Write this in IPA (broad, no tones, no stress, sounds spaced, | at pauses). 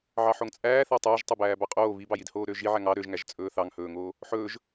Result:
ʕ ɑ ħ o ŋ t͡sʼ æː θ æ tˤ ɵː ʒ tˤ ɵ b æː b ɑ qʼ oː β i b ɑ j i d h oː ɾ ø ʒ i ʕ æ ŋ ɑ ɾ ø ʒ ŋ æ ʒ t͡sʼ ɵː θ ɑ ŋ h ɵː ŋ oː | ħ ɵː ʒ